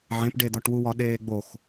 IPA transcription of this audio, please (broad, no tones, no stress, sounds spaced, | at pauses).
ʕ ẽ p ɖ e d̪ ɒ ʈ w u w ɒ ɗ eː ɡ͡b o x